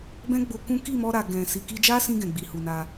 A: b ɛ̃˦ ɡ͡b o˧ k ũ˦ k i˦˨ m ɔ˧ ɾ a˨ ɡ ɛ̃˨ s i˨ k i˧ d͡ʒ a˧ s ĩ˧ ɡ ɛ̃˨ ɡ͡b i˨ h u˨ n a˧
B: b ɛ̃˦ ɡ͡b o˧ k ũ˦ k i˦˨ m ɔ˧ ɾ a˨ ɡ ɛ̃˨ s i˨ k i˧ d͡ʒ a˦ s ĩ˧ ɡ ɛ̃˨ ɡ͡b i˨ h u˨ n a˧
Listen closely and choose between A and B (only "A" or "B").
B